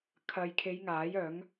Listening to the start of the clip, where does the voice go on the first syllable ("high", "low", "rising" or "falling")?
low